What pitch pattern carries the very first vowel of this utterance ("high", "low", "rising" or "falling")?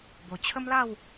low